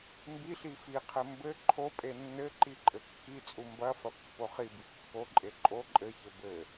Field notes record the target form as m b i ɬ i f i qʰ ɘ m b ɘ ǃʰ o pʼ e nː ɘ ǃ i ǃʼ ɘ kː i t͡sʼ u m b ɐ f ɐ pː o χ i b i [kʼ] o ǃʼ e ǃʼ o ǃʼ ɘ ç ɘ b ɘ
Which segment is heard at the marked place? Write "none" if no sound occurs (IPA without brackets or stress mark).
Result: kː